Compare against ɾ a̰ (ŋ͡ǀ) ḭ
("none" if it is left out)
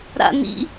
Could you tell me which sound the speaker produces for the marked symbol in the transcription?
n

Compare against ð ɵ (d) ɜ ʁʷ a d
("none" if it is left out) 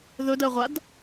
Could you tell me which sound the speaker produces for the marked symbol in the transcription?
d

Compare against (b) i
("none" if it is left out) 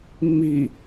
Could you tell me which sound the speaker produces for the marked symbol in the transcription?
m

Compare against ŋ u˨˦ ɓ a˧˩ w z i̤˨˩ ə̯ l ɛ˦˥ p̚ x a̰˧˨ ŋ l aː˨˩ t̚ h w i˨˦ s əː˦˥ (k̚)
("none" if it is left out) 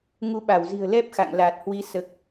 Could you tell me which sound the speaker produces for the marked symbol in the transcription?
k̚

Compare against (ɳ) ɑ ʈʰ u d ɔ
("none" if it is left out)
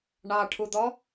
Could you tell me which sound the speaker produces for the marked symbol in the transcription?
ɳ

